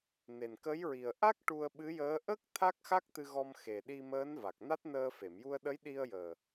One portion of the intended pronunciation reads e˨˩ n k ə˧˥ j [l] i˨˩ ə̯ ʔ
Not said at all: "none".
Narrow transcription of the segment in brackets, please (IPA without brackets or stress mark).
ɹ